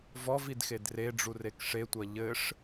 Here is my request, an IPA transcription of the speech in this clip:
v ɔ v i d x e d r e ɖ͡ʐ u r e k ʂ e tʷ ɐ ʎ ɘ ʂ

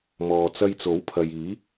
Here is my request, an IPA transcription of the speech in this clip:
m ɔː˨ t͡s ɐ˧ j t͡s o˨˥ w pʰ ɐ˨ j iː˨˥

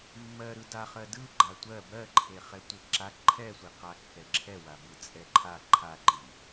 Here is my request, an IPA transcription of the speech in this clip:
mː ɜ ɾ ɯ d a χ ɜ d ɯ ɡ͡ǃ a tʷ ɜ b ɜ ǃʰ e χ ɛ tʷ e ǁ a ǃʰ ɛ sʷ i q a kː ɛ ǁʰ ɛ w a b ɯ t͡sʼ ɛ ǃʰ a ǃʰ a ǃ i

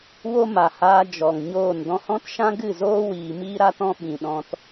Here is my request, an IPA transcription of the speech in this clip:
w o˦ m a˨ h aː˧ d͡ʒ ɔ˨ ŋ ɲ oː˦˨ n d ɔ̃˧ h ɔ̃˦ t ʃ ã˦ ɡ ɨ˦˨ z oː˦ w iː˨ m iː˦ ɾ a˦ t ɔ̃˦ ɓ ĩ˨ ɗ ɔ̃˧ t

